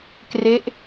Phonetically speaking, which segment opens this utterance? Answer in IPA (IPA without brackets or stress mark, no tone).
k